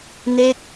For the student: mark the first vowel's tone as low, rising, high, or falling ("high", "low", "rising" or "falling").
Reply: falling